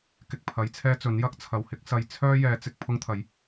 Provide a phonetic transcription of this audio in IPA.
k ɪ˨ k̚ pʰ ɐ˨˧ j t͡sʰ ɛː˥ t͡s ɵ˨˥ n j ɐ˥ k̚ t͡sʰ ɐ˨ w h ɪ˥ k̚ s ɐ˨ j t͡sʰ œː˥ j ɛː˨˧ t͡s ɪ˨ k̚ pʰ ʊ˥ ŋ t̪ʰ ɐ˨˥ j

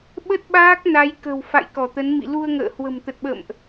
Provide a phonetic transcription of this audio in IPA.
ɓ ə˦˥ t̚ ɓ aː˦˥ k̚ n a˨˦ j k ə̤˨˩ w f a̰˧˨ j k ɔ˧˩ t̪ ə˨˦ n m ḭ˧˨ l u˧ ə̯ ŋ ə̰ː˧˨ h w ə̤˨˩ m t̪ ə˨˩ t̚ ɓ ə̰˧˨ m ʔ

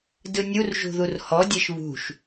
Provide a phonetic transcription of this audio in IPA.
d ɯ nʲ u r ʒ ṳ ð u r h ɔ dʲ e ʃ β ṳ ʃ

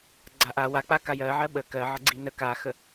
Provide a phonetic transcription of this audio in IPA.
ɡ͡ǀ a ʔ a w a k͡p a k a j ɜ ʕ ɜ ɓ ə k ɜ ʕ ə ɡ͡ǀ i n ə k a x ə

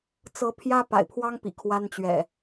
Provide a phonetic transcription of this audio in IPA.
t͡s ɤ˨˦ pʰ j ä˦ p a̰˨˩ ɪ̯ pʰ w ɑ˦ ŋ p ḭ˨˩ kʰ w a˦ n t͡ɕ ɥ ɛ̰˨˩

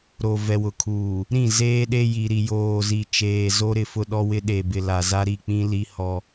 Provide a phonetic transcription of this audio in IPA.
ɾ o˨ v ɛ˨ w ʊ˨ kʰ uː˨ | ɾ ĩ˦˨ z eː˦ ɗ e˦ j i˨ ɾ i˨ j oː˨ z i˨ t͡ʃ eː˨ z o˦ ɾ ɪ˦˨ f ʊ˦ ɗ ɔ˦ w ɪ˦ ɗ e˨ b ɪ˨ l a˨ z a˦ ɾ i˦˨ k͡p ĩ˦ l i˦ h ɔ˦

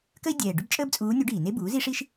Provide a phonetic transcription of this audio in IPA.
k ə˥ i̯ dʲ ɛː˨˩ ɖ ʏ˥ b t͡ʃʼ əː˥ b t͡sʼ uː˧˥ nʲ u˧˥ ɖ iː˧˩˧ n e˥ b uː˩˥ z i˥ ʂ i˥ ʃ

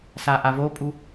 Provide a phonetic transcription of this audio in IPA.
s a ʔ a v o pʼ u

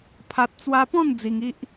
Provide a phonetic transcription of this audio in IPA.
pʰ a˨ t̚ t͡s w a˧ p ɔ̃˥˧ n d͡z i˧ ŋ i˦ ʔ

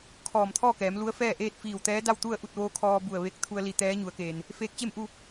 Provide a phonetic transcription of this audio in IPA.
kʰ ɔː˧˩ m t̪ʰ ɔː˥˨ k ɛː˩˧ m l u˧˥ ə̯ f ɛː˥˨ ʔ eː˥˨ t̚ f iː˧˩ w t̪ ɛː˧˥ d a˥˨ w t̪ u˥˨ ə̯ ʔ u˥˨ t̚ ʋ oː˧˥ kʰ ɔː˧ b u˧˩ ə̯ ʋ e˧˥ k̚ t̪ʰ u˧ ə̯ l i˧˩ t̪ ɛː˧˥ ɲ u˩˧ ə̯ k eː˩ n | f eː˧˥ k̚ t͡ɕ e˥˨ m ʔ u˥˨

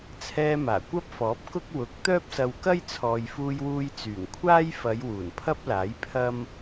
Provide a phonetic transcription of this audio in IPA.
t͡sʰ ɛː˧ m aː˨˩ kʷ ɐ˥ p̚ f ɔː˨˥ p̚ k ʊ˥ k̚ w ʊ˨˥ k̚ t̪ œː˥ p̚ s ɐ˧ w k ɐ˥ j t͡sʰ ɔː˨ j f uː˧ j w uː˧ j t͡s yː˨˩ ŋ kʷʰ aː˥ j f ɐ˨˧ j w uː˨˩ n pʰ ɐ˥ p̚ l aː˨˥ j pʰ ɐ˥ m

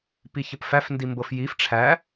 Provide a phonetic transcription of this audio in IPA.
p i ç ə p f æ f n d i m b ɤ f j i f ʈ͡ʂʰ æ

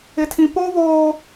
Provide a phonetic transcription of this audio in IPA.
ɪ˦ tʰ ĩ˦ p o˦ β oː˦

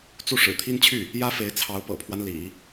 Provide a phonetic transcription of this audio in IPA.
t͡s u˥˩ ʂ ɻ̩˨˩ t̪ʰ i˥ n t͡ɕʰ y˥˩ | j ä˥ f e˧˥ ɪ̯ t͡sʰ ɑ˧˥ ʊ̯ p ɤ̰˨˩ pʰ w a˦ n l ḭ˨˩˦

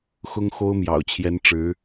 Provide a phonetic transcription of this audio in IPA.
x ʊ˥ ŋ x o˥ ʊ̯ m j ɑ̰˨˩ ʊ̯ t͡ɕʰ j ɛ˧˥ n ʈ͡ʂ ɻ̩˧˥

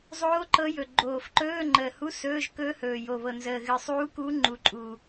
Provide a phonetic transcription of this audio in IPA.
zˤ oː˧˥ ǃ ɤ˧˥ j ɵ˨˩ ɡ͡ǃ oː˨˩ f ǃ ɵː˧˥˧ ŋ͡ǃ əː˨˩ h u˧˥˧ s ɵː˧˥˧ ʒ k ɵː˧˥ h ɵː˨˩ j o˨˩ β ɤ˨˩ n z əː˨˩ ɣ ɨ˨˩ sˤ uː˧˥ k u˧˥ ŋ͡ǃ u˨˩ ǃʼ u˨˩

